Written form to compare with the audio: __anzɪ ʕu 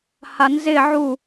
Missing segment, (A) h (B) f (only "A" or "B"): A